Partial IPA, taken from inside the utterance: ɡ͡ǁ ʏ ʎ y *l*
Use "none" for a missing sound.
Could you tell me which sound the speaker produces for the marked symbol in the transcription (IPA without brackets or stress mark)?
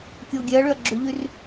r